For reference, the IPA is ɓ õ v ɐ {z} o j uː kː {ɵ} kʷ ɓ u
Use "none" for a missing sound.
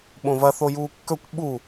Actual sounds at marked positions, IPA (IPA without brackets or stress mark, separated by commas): θ, ɵ